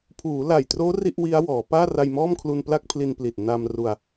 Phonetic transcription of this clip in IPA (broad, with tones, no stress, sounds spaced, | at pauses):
pʰ uː˩˦ l a˨˩ j t r oː˦˥ r i˥˩ ʔ w i˦˥ a̯ w ɔː˩˦ p aː˥˩ r a˧ j m ɔː˥˩ m kʰ l u˧ n p l a˥˩ k̚ pʰ l i˧ n p l i˨˩ t̚ n a˧ m r u˧ a̯